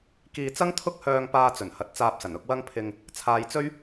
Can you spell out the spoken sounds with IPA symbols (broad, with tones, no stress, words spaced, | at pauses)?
kiː˧ t͡sɐ˥ŋt̪ʰʊ˥k̚ hœː˧ŋ paː˧t͡sɵ˨˩nhɐ˨t̚ t͡saː˧p̚sɐ˨˩nʊ˧k̚ wɐ˥ŋpʰɪ˧ŋ | t͡sʰaː˧jt͡sɵ˥ɥ